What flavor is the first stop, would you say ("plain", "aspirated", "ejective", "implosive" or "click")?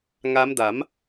plain